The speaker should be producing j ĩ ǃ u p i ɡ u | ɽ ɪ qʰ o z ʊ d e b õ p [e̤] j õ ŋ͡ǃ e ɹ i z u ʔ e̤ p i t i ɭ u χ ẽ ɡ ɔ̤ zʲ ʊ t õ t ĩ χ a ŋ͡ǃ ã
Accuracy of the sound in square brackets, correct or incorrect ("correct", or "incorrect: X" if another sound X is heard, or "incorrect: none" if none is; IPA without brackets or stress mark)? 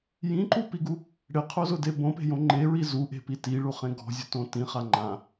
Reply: correct